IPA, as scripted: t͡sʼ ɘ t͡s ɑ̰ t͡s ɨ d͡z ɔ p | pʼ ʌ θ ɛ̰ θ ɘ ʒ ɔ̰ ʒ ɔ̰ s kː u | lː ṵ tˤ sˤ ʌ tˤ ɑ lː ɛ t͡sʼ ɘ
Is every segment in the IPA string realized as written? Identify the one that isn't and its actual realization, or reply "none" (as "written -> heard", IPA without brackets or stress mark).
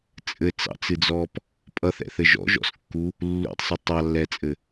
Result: none